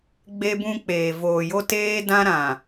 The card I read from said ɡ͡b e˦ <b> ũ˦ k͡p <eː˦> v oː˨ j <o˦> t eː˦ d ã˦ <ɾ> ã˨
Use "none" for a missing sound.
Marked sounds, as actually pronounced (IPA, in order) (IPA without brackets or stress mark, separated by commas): b, eː˨, o˦, ɾ